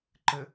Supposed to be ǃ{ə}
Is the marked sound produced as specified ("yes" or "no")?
yes